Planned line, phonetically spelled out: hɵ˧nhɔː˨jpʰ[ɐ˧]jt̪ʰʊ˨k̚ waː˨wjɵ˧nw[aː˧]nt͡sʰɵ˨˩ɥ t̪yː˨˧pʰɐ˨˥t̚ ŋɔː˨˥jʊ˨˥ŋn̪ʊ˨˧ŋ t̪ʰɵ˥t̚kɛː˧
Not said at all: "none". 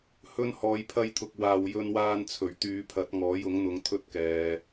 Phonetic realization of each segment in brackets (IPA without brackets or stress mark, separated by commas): ɐ˧, aː˧